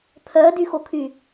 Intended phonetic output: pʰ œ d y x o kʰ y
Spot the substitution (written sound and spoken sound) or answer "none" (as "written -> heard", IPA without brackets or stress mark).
none